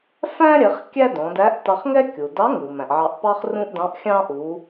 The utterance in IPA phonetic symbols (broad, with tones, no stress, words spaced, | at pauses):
fæ̃˥ɾʲɛ˩˧χ kʲæ˥dɔ̃˩˧dæ˧˥ʔ tɑ˧χŋɛ˥ kʲu˩dɑ˧˥ŋu˩ mæ̃˩ʔʕɑ˧ʔpɑ˥χ rũ˥ʔdɑ̃˧˥ʔxʲɑ̃˥ ʔu˩˧